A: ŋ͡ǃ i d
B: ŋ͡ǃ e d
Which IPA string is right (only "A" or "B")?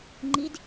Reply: A